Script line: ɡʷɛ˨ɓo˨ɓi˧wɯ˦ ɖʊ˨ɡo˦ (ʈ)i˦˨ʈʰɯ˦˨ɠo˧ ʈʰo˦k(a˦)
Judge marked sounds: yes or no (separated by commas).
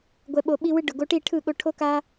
yes, yes